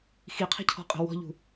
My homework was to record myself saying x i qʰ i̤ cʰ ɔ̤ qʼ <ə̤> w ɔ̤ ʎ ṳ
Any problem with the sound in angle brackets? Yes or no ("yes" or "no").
no